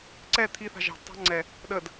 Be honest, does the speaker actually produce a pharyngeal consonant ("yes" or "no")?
no